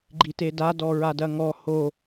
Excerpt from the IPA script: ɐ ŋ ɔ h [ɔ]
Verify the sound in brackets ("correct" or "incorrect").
incorrect